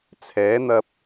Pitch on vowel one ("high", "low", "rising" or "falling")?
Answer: rising